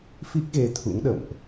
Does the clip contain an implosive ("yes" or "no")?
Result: yes